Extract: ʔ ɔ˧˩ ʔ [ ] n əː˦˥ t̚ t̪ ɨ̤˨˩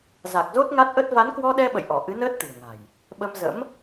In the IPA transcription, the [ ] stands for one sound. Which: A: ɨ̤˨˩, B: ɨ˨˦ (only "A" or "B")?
B